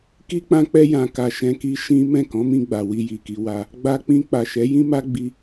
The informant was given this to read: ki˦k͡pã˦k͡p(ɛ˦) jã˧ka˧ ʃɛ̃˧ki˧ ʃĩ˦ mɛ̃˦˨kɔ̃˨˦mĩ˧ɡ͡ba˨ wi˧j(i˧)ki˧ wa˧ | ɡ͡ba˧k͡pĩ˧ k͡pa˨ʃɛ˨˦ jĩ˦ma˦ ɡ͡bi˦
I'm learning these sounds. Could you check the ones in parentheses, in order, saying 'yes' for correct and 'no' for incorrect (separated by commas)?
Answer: yes, no